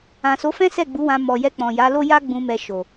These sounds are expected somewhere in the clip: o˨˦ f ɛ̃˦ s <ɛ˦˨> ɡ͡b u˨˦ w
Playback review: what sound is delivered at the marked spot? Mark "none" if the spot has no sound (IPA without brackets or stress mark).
ɛ˦˨